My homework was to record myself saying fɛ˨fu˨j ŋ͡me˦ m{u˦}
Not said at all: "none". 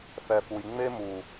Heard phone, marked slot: u˨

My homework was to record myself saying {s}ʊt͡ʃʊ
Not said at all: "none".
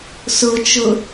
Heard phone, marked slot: s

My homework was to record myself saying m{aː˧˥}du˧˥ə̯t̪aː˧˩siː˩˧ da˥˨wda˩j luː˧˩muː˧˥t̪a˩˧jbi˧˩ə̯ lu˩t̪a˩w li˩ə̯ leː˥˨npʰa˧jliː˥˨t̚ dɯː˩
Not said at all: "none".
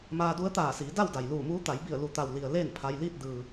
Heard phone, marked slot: aː˧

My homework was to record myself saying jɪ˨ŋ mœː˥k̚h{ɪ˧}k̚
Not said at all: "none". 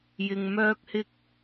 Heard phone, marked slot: ɪ˥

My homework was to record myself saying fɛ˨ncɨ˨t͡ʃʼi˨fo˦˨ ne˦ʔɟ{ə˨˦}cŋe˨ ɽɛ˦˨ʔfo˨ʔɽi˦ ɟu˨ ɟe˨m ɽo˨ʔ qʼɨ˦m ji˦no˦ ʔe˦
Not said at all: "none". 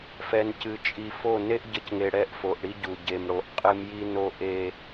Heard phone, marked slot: ə˨˦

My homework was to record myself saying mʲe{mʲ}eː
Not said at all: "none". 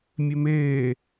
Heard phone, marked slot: m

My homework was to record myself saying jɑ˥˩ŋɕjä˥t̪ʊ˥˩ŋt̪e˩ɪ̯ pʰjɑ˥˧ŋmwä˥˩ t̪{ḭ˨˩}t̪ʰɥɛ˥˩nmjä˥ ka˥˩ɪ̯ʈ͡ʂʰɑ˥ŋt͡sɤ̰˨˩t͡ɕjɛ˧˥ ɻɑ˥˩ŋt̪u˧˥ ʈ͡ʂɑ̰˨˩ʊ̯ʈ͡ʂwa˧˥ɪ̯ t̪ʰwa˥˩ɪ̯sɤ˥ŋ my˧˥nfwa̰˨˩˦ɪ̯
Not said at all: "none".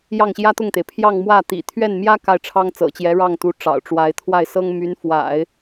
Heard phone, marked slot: ḭ˨˩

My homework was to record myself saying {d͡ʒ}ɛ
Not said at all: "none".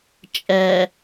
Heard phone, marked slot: t͡ʃʼ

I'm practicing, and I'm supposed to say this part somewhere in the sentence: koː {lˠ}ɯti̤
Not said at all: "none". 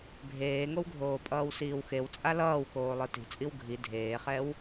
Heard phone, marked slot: lˠ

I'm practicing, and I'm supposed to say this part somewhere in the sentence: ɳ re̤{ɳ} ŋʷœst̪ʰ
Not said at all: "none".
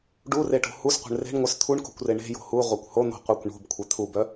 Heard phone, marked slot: ɳ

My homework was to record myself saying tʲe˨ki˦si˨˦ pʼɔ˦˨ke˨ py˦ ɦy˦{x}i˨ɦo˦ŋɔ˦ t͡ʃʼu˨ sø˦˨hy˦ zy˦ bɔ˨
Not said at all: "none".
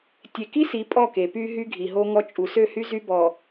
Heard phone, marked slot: ɡʱ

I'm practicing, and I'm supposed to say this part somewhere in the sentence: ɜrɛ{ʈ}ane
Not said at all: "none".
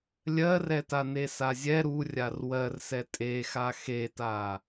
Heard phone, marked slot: t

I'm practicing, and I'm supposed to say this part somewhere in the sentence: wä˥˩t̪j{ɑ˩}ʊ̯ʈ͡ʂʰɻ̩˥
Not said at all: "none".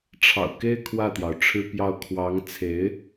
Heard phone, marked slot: ɑ˩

